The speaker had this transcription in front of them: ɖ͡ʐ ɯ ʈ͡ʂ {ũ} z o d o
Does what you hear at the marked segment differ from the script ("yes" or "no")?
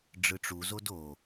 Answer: yes